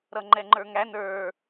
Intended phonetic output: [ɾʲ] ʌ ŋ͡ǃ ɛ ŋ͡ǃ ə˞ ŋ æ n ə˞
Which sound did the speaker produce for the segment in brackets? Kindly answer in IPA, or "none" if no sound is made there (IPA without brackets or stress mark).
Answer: ɾ